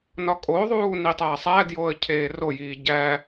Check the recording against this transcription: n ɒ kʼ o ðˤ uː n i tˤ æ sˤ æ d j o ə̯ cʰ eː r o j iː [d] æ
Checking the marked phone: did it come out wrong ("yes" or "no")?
yes